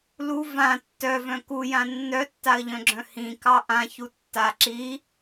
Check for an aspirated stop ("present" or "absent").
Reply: absent